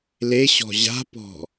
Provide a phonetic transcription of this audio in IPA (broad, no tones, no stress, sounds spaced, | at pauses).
l e ɕ ɔ̤ ʑ a̤ p ɔ̤